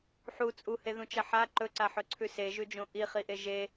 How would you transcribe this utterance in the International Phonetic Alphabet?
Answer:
ħ u t͡sʼ u h e ð ũ t͡ʃ ɐ ħ a ǃ ɵ ǀ a ħ ɵ ǀʰ ʉ s e ʒ ʉ d͡ʒ õ ʔ i χ i ʔ e ʒ e

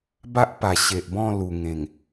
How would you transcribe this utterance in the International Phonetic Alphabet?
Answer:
b a˦ ʔ p a˨˩ ɕ e˨ ʔ b ɔ̃˥˧ l u˨˩ ŋ ẽ˨˩ ŋ

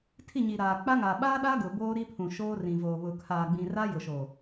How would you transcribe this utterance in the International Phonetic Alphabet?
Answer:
tʰ i˦˨ ɲ i˨ ɾ aː˨ k͡p a˦ ŋ a˨ ɓ aː˦ ɗ a˦ ɡ ʊ˨ b oː˦ ɾ i˦ pʰ ũ˨ ʃ oː˦ r ĩ˨ v oː˨ β ʊ˨ kʰ aː˨ ɡ͡b ĩ˨ r a˦ j ʊ˨ ʃ oː˨

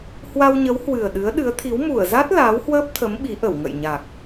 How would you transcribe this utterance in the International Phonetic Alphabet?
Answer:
h w a˧ w ɲ ə˨˦ w h w ɨ˨˩ ə̯ ɗ ɨ˨˦ ə̯ ɗ ɨ˨˦ ə̯ t̪ʰ i˨˦ w m u˧˩ ə̯ z a˦˥ t̚ l aː˨˦ w h w əː˦˥ p̚ t̪ʰ ə˨˦ m ɓ i˨˦ ʔ ə˧˩ w ŋ ə̰˧˨ j ɲ a˨˩ k̚

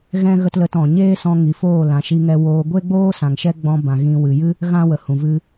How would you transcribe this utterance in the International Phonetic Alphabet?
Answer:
ɣ ɛ̃˦ ɣ ə˦ t l ə˧ t ɔ̃˨ ɲ eː˦ s ɔ̃˧ ŋ i˨ f oː˦˨ l ã˨ ʃ i˧ ŋ ɛ˧ w oː˧ ɡʷ e˦ ɡ͡b oː˦ s ã˨ ŋ ʃ ɛ˦ ɡ͡b ɔ̃˧ b ã˨ ɣ ĩ˧ w ɨ˨ j ɨ˦ | ɣ ã˦ w ə˨ h ũ˨ v ɨ˧

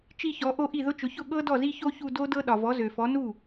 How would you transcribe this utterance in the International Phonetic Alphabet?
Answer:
t͡ʃ i˥˧ ç ɔ˨˥ ʔ o˥˧ ʔ i˥˩ ð ʊ˦˥ t͡ʃ ʊ˨˥ ç ʊ˥˩ ɠ ɤ˦˥ d ɔ˥˩ z i˥˧ ç o˦˥ ç u˥˧ d o˦˥ d ɤ˦˥ ɗ ɒ˨ v ɔ˨˥ z ø˨ f ɔ˨˥ n u˥˩

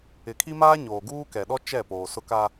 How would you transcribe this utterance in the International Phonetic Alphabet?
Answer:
ɪ˨ kʰ i˦ m aː˦ ɲ oː˨ ɡ uː˦ k ɛ˨ ɗ ɔ˦ t͡ʃ ɛ˦˨ p oː˨ s ʊ˦ k a˦

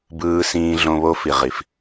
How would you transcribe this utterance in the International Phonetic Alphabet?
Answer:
b ɯː˧ s ĩː˧ ɮ õ˧ β o˧ f i˨ ʁ i˨ f

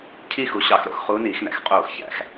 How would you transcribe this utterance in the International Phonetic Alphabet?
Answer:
cʰ i˥˧ x u˩˥ ɕ ɑ˧˩˧ x ɾ o̰˩˧ x χ uː˧˥ n iː˧˩˧ x n æ̰˩˧ x qʼ oː˧˩˧ x ç æ̰˧˩˧ x

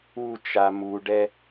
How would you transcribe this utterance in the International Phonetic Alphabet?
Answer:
u t͡ʃ a m u ɖ ɛ

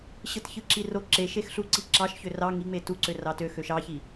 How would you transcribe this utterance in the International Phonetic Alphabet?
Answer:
ɕ ɯ t ç ɯ ǁ i r o ǁ e ʃ e x ɬ u ǀ i ǁ ɑ ʃ ç ø r ɑ ŋ i ŋ͡m e t u ǀ ø r ɑ t ø x ø ʃ ɑ ç i

